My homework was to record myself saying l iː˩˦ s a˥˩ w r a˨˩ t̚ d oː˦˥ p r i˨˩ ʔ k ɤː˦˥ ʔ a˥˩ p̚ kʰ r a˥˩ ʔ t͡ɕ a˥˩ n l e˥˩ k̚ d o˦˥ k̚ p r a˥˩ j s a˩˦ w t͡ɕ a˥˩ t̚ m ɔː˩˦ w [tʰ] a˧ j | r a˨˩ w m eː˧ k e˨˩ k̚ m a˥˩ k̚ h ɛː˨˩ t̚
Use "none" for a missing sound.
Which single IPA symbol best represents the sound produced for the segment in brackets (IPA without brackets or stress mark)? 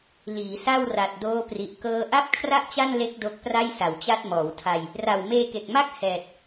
tʰ